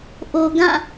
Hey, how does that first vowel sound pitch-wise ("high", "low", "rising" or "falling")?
low